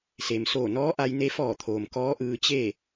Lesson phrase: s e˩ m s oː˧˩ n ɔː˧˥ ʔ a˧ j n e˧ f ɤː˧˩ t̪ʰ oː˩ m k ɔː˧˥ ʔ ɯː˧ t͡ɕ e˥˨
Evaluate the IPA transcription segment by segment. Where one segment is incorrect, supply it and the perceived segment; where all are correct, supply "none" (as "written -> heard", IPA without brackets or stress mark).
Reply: ɤː˧˩ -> ɔː˧˩